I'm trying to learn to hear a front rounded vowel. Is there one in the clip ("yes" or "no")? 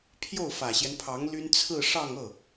yes